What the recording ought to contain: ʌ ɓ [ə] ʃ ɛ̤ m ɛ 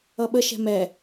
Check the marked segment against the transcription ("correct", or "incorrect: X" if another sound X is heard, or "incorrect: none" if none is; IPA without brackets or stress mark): correct